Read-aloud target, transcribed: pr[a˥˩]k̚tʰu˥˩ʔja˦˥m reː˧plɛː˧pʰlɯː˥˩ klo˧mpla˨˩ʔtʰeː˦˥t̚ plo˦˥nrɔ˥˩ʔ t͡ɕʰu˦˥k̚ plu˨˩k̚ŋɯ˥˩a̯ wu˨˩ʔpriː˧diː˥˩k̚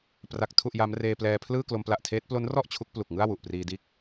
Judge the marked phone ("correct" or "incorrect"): incorrect